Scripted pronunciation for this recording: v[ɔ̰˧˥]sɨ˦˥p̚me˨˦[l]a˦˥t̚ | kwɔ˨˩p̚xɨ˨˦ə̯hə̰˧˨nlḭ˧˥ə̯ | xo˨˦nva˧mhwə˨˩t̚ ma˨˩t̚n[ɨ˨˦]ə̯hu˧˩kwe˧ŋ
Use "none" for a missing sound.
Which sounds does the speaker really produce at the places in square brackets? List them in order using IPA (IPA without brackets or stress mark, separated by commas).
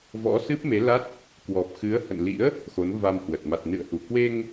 ɔ̰˧˥, l, ɨ̰˧˨